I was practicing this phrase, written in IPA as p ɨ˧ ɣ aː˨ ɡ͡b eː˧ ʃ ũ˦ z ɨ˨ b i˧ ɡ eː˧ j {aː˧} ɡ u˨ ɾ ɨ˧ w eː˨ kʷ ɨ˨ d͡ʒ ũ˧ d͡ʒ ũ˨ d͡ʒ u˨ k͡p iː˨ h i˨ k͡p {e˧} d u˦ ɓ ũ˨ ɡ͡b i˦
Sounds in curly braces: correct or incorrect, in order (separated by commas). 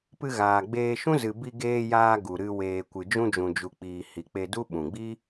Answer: correct, correct